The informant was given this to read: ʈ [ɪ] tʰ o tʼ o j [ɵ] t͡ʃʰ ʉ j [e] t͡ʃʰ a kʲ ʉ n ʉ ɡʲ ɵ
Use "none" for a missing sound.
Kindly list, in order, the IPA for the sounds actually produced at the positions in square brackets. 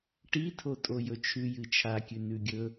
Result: i, ɵ, ɨ

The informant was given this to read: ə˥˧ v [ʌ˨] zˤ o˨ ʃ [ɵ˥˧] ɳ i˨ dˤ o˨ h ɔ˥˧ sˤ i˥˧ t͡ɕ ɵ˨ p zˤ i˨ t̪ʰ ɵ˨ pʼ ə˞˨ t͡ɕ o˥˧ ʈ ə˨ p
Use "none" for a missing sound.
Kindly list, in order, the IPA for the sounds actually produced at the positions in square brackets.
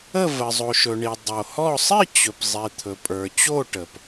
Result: ə˨, ɵ˨

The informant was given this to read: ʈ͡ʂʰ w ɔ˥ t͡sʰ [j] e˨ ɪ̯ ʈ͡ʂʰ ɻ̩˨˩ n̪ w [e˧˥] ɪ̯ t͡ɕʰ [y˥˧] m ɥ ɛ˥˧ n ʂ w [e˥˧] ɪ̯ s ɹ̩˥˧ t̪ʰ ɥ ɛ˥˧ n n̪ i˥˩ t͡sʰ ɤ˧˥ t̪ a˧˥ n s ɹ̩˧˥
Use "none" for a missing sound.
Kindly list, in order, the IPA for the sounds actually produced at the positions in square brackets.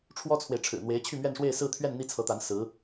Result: w, e˧˥, y˥˧, e˥˧

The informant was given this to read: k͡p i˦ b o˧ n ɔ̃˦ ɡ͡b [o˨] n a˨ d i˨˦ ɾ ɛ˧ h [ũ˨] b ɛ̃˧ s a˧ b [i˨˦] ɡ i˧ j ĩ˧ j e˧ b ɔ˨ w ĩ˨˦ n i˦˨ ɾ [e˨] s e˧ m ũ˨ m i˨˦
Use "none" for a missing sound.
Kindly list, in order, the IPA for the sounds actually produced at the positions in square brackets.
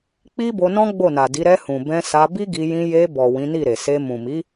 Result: o˦˨, ũ˨, i˦, e˨

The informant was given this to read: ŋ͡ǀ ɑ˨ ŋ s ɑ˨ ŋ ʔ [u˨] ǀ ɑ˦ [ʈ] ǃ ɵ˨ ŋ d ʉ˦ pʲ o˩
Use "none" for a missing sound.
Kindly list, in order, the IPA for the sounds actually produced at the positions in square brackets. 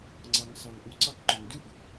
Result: u˨, k

